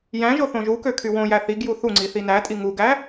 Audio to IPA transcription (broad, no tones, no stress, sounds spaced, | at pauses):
j æ̃ ʒ o θ õ ʒ u k ø kʰ y w õ j æ θ i ɡ j u θ u ŋ͡ǀ i θ i n æ tʼ i ŋ u ɡ æ